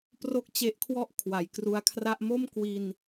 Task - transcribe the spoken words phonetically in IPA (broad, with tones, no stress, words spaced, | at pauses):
pro˥˩k̚t͡ɕe˦˥ʔkʰwɔ˥˩ʔ kʰwa˩˦jkru˧a̯kʰra˥˩ʔ mo˥˩mkwi˧n